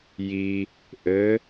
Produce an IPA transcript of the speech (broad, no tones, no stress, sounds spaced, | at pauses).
j i | ʔ ɘ